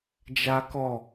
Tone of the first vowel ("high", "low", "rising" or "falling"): high